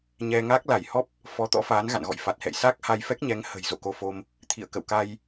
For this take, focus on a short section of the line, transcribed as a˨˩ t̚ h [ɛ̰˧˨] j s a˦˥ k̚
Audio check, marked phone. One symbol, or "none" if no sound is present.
ɛ̰˧˨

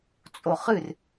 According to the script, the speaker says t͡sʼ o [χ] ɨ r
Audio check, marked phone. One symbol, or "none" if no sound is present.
χ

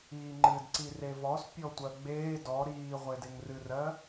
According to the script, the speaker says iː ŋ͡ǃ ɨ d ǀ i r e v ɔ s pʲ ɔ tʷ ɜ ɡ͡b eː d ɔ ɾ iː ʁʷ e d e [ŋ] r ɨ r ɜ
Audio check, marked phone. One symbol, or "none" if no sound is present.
ŋ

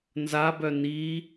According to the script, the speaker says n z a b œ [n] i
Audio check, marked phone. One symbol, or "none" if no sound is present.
n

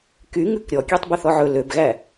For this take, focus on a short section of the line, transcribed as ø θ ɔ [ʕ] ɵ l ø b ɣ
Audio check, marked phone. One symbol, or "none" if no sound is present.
ʕ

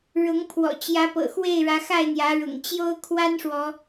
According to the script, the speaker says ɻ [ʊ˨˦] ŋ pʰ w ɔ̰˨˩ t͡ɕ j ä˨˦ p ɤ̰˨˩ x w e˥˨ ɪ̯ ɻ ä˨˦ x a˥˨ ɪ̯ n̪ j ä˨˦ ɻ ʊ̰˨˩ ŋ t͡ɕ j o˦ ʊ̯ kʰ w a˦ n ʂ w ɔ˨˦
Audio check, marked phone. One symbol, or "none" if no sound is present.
ʊ˨˦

